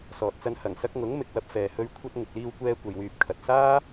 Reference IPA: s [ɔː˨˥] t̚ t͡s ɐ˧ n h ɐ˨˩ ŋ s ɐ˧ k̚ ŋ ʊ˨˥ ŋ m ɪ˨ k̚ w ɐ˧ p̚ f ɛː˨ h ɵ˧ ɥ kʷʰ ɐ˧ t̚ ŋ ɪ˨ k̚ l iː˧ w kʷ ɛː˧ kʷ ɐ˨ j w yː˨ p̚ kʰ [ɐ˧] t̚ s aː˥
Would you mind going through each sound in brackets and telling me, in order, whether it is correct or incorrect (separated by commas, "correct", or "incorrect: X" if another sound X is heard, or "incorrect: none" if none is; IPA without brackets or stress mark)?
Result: incorrect: ɔː˨, incorrect: ɐ˨